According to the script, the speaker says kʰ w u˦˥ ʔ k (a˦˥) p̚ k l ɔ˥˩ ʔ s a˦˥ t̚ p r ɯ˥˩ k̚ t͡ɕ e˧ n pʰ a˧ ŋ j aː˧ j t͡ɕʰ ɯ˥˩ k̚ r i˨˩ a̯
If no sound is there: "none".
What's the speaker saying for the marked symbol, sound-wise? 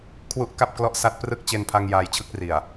a˥˩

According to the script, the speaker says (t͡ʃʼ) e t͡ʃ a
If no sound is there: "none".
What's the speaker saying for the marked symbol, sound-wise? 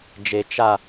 d͡ʒ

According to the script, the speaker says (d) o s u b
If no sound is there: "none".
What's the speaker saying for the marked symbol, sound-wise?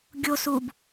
ɡʲ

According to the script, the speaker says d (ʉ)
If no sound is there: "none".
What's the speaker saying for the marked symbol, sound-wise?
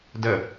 ə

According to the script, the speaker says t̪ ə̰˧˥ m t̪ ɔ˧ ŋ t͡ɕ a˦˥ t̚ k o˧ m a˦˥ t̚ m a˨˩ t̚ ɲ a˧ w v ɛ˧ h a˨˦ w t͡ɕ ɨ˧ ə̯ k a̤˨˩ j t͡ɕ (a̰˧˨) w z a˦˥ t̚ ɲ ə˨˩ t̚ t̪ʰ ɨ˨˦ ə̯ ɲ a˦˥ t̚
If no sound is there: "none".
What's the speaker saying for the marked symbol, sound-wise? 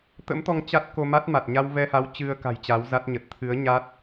a˨˦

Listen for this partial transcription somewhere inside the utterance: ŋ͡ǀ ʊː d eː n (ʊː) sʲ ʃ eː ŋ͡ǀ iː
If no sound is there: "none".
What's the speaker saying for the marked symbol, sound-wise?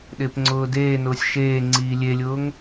ʊː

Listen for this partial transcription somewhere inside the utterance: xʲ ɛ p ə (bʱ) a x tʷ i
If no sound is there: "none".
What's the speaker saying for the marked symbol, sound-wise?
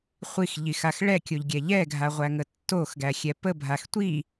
bʱ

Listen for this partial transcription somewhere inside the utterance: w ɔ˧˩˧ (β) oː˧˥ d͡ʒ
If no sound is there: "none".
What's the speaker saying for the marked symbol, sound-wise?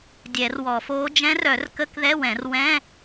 f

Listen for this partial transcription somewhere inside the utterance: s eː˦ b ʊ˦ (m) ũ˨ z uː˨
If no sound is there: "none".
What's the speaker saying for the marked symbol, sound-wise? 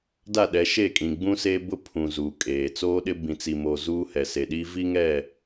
pʰ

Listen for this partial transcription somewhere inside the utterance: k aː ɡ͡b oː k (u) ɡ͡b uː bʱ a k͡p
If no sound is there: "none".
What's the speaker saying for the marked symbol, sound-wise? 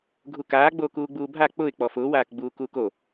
uː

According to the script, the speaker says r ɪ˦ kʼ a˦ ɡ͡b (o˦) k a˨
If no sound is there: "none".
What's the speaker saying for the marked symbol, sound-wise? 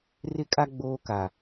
oː˦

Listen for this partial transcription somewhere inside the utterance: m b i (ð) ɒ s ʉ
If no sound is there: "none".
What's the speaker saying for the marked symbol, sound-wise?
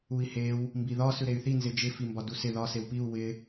ð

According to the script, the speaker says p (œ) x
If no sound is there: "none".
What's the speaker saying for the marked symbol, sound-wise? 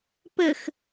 ə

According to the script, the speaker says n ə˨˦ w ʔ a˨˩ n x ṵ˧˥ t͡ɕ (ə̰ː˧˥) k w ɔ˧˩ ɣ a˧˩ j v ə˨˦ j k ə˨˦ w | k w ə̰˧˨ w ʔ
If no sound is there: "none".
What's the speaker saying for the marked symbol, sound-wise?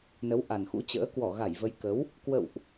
ə̰ː˧˥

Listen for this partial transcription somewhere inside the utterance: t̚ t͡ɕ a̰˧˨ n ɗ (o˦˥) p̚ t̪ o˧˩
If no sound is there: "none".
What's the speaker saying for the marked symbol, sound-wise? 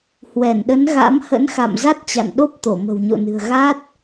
o˦˥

